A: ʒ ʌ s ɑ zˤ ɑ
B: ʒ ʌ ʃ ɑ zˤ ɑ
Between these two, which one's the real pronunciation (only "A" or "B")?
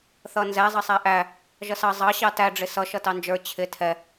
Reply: A